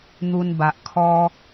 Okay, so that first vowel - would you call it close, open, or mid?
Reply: close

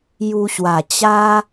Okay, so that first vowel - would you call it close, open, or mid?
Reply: close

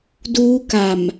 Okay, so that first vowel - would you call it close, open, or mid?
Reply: close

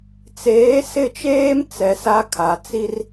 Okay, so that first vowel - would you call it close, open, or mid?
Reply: mid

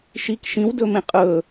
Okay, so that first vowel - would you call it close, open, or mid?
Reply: close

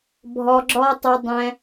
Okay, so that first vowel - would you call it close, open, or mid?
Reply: mid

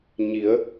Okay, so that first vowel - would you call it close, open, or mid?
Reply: close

